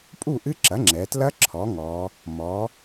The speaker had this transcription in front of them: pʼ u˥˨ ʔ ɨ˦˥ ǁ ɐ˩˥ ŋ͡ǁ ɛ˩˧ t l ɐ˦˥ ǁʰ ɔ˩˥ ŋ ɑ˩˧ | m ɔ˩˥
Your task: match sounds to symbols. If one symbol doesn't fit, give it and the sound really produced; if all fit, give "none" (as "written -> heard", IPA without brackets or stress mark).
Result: ɑ˩˧ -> ɔ˩˧